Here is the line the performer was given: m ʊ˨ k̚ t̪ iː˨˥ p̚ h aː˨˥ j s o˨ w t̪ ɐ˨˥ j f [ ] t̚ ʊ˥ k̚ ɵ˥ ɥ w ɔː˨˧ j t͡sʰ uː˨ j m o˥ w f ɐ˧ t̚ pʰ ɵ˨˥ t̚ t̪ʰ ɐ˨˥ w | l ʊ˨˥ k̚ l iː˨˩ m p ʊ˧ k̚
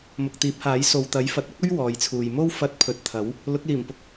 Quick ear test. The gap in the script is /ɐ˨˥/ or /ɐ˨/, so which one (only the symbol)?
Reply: ɐ˨